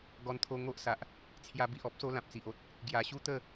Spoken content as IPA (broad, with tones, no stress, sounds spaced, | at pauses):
ɡ ɔ˧ n t̪ʰ o˧ ŋ o˦ ʔ s a˨ ʔ | t͡sʰ j a˧ b i˨ ʔ ɔ˦ p̚ s o˦ l ã˨ p̚ t͡s i˨ ʔ o˦ t̚ | ɡ j a˨˩ ɕ u˦ t̪ ə˥˧